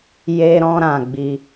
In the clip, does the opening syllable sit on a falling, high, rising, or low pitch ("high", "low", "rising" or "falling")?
high